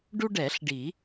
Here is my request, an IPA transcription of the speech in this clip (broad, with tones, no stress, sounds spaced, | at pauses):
ɖ u˦ ɖ ɛ˨˩˦ ɬ ɖ i˨˩˦